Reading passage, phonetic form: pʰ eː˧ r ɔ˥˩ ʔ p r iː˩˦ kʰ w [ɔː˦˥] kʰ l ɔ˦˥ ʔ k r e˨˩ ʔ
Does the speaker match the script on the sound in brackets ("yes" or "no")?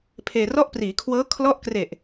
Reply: no